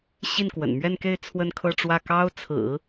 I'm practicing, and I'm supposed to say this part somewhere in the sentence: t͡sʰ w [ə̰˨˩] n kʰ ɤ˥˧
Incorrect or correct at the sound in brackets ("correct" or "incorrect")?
incorrect